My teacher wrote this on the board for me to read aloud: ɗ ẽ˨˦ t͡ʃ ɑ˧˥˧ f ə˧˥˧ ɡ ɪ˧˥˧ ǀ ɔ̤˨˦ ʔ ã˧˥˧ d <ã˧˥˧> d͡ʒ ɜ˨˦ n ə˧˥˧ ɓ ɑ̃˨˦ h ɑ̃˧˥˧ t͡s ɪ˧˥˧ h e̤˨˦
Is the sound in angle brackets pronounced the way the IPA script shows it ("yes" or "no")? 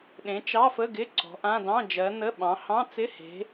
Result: no